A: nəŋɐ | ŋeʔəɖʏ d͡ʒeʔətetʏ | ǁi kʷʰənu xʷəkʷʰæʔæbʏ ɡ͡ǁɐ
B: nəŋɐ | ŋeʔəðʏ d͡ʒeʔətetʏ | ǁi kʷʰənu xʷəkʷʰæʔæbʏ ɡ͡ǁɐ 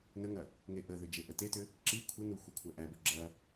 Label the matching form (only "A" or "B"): B